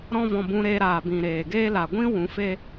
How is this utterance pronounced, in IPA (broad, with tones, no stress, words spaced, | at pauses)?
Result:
ɾɔ̃˧vɔ̃˨ bũ˧ɾeː˧ɾaː˨bĩ˨ ɾeː˨ɡeː˦ la˨ɡʷĩ˦ wũ˨˦feː˦